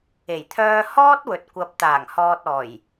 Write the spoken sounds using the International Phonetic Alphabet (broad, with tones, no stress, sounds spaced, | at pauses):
e˨˩ j t̪ʰ œː˧ h ɔː˥ t̚ w ɵ˨ t̚ kʷ ɐ˨ p̚ t̪ aː˨˩ ŋ h ɔː˨ t̚ ɔː˨˩ j